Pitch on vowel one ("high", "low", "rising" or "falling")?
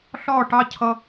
falling